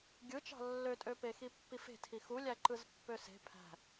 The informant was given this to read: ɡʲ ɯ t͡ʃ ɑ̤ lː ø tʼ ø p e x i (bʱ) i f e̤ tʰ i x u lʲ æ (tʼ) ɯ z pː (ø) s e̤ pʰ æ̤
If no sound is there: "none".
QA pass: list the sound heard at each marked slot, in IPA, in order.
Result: pː, ǃ, ø

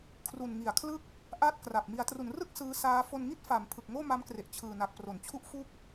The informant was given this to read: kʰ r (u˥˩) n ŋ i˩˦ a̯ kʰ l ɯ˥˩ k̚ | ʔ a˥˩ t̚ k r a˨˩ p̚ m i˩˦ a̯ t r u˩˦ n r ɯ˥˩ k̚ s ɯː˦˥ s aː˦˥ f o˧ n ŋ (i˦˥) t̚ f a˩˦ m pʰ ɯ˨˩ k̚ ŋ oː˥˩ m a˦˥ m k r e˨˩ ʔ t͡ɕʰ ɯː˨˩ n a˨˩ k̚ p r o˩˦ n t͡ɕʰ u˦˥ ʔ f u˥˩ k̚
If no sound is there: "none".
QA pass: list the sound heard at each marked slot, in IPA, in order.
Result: u˨˩, i˥˩

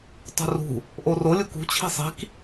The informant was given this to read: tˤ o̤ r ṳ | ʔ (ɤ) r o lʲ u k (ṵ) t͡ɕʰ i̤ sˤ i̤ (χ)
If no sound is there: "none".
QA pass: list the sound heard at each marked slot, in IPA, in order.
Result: o, ṳ, k

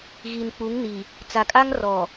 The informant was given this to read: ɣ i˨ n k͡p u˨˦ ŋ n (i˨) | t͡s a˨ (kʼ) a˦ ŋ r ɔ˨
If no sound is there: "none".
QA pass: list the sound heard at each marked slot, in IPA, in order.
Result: i˨, kʼ

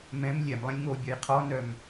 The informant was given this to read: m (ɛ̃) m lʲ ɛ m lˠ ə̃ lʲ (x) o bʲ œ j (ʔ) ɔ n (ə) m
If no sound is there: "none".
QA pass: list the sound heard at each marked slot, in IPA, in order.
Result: ɛ̃, ŋ, qʰ, œ

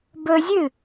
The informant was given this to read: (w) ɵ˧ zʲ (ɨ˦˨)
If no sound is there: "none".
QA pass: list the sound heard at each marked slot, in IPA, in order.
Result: b, ɨ˦˨

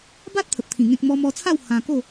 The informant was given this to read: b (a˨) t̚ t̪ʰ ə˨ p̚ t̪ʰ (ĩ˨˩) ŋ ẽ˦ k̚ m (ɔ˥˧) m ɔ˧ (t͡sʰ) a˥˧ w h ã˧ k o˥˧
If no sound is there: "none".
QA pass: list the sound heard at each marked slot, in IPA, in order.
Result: a˦, ĩ˨˩, ɔ˧, t͡sʰ

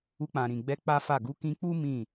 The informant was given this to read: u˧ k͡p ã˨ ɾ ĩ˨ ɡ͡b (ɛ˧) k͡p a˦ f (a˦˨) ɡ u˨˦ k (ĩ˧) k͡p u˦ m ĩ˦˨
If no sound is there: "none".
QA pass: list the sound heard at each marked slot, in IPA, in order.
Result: ɛ˧, a˦˨, ĩ˧

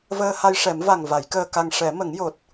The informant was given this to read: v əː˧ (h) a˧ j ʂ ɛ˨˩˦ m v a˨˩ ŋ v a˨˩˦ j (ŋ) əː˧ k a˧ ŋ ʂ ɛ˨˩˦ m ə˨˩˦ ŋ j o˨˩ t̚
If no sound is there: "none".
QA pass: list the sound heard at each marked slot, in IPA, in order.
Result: h, k

